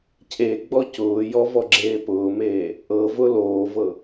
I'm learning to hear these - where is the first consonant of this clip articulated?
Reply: palate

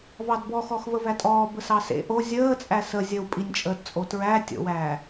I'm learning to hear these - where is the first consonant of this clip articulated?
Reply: lips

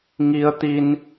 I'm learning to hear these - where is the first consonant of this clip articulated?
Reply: velum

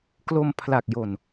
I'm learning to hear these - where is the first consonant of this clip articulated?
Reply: velum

